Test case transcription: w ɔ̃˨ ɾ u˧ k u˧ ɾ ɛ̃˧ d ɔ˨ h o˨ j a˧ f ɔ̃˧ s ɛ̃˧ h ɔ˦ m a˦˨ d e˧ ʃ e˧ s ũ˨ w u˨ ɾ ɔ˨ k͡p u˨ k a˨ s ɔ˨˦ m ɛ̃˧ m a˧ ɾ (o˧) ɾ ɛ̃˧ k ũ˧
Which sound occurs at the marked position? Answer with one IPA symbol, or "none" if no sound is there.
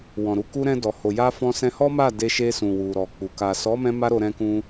o˧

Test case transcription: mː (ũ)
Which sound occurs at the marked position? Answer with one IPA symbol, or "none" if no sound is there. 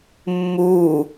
u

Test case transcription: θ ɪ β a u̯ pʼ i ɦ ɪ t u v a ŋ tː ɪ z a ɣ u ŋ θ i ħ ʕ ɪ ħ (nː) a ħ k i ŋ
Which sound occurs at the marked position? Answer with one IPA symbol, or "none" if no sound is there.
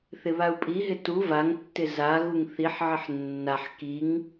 nː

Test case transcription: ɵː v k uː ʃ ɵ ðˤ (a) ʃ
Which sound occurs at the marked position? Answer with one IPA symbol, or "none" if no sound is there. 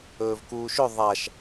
a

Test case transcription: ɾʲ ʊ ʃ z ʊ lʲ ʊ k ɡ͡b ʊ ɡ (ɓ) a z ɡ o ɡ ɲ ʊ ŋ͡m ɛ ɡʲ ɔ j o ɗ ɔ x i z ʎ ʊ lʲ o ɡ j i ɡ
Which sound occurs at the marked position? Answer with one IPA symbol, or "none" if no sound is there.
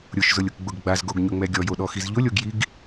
ɡ͡b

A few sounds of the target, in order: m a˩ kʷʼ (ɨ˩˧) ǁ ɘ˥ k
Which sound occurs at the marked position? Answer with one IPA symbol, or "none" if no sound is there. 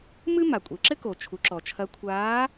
e˩˧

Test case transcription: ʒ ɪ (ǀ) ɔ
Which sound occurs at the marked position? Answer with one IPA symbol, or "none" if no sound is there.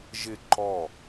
ǃ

